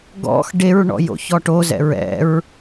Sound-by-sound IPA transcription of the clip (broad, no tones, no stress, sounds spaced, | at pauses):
ɡ ɔ̰ x ɖ e ɹ ɳ ɔ̰ j o̰ ç ɔ ʈ o z ɛ̰ ɹ ɛ̰ ɹ